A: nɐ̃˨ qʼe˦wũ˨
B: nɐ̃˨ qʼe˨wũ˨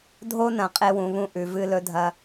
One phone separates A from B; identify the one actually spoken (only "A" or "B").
A